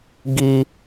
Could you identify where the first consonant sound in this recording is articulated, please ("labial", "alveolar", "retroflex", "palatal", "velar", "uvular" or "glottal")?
velar